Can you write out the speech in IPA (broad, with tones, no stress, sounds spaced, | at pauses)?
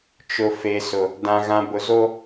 t͡ʃ ʊ˨ f e˨ s ʊ˨ | d ã˨ ɣ ã˨ b ʊ˨ z o˦